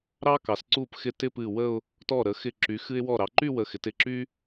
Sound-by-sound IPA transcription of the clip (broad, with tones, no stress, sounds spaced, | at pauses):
ɾ ɑ˥ k ɑ˩˧ s ǀ u˧˩ p x ɪ˧˩ t ɪ˥˧ p ɨ˧˩ w ə˥˧ ʊ̯ | t ɔ˧˩ ɾ ə˩˧ x ɪ˧˩ ǁ y˩˧ x ɨ˧ ɪ̯ w ɔ˧˩ ɾ ɑ˩˧ ǃ y˥˧ w ə˧˩ x ɪ˩˧ t ɪ˧˩ ǁ y˥